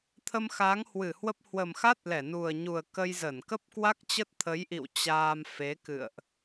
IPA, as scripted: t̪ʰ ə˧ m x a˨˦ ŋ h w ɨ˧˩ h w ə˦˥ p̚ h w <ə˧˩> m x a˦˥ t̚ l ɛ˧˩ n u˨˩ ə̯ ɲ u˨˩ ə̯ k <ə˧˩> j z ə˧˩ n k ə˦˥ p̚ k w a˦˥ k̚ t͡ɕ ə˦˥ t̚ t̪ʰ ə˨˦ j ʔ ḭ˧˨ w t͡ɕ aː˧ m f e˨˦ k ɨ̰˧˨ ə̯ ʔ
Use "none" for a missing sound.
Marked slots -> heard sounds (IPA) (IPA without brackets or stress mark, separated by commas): ə˨˩, ə˧